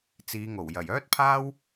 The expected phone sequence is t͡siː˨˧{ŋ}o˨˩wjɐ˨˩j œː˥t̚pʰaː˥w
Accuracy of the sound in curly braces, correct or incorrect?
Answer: correct